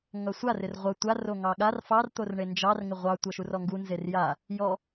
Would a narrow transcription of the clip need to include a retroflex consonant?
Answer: yes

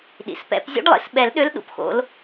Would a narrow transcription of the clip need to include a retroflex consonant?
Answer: yes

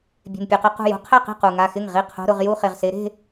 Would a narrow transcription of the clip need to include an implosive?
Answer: no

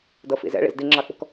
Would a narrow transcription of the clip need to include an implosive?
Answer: no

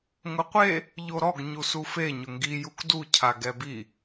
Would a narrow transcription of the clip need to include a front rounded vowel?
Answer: no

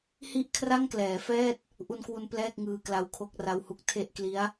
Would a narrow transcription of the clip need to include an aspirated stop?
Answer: yes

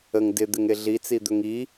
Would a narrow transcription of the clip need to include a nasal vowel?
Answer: no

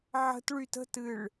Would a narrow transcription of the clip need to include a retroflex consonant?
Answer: yes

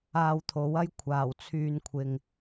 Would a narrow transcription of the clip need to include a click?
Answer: no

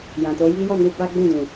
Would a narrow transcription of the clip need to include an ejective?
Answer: no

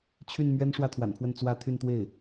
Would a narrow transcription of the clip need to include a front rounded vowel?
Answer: yes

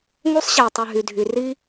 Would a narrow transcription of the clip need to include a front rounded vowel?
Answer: yes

